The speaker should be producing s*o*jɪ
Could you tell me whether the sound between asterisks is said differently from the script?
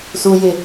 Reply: yes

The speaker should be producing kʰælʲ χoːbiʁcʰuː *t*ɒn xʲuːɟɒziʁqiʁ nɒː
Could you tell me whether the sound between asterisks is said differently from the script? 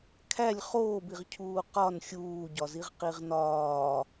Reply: yes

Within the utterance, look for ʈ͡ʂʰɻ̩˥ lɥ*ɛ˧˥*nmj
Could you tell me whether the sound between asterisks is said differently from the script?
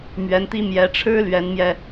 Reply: no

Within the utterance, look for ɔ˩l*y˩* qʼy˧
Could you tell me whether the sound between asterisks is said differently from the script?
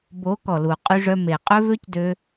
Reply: yes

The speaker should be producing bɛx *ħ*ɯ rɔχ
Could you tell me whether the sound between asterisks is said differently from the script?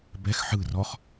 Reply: no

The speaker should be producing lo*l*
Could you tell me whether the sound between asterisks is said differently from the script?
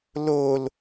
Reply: no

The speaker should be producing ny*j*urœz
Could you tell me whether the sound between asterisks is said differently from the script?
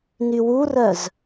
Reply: yes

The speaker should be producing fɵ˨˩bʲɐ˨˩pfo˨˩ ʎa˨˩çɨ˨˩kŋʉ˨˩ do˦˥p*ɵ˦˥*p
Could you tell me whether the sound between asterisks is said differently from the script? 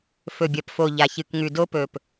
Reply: yes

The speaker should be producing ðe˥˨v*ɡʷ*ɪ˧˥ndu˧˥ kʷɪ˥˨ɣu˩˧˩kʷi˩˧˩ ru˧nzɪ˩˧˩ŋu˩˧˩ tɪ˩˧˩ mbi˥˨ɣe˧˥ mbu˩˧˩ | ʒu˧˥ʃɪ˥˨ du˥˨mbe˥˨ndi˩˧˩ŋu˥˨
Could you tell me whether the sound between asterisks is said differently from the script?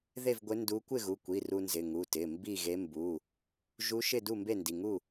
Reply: no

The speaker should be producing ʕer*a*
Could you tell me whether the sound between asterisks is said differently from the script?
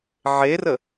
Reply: yes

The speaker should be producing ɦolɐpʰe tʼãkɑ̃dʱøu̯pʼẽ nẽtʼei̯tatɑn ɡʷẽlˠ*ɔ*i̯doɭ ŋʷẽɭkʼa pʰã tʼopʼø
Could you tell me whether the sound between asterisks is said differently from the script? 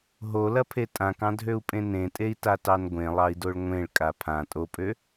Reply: yes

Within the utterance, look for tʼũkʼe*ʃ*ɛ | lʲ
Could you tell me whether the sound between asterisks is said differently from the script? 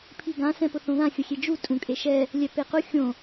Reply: no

